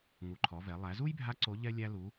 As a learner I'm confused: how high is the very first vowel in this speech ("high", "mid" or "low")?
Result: high